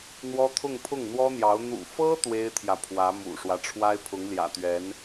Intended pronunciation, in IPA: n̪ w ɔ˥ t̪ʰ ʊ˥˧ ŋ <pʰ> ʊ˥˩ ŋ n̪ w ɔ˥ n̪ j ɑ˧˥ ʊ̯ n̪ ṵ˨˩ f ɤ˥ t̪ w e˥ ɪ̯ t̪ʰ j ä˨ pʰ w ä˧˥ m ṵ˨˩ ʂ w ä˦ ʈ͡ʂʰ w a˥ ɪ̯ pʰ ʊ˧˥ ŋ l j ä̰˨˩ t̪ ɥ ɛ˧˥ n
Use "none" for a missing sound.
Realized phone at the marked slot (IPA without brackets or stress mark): pʰ